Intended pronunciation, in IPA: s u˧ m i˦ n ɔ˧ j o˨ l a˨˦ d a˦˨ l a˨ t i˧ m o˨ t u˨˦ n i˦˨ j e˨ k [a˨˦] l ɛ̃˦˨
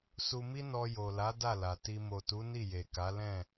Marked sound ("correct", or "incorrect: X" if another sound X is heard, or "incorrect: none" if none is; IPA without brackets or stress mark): correct